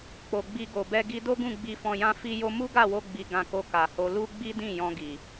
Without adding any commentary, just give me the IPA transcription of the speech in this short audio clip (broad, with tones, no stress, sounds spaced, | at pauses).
k͡p o˨ ɡ͡b i˧ ɡ o˨ b ɛ˧ ɡ i˧ d o˦ ɡ ũ˦˨ ɡ͡b i˧ f ɔ̃˧ j ã˦ f i˧ j o˧ m u˦ ɡ a˦˨ w o˧ ɡ͡b i˧ ɡ ã˧ k o˧ k a˨ h o˧ l u˦ ɡ͡b i˦ d ĩ˦˨ j ɔ̃˧ ɡ i˨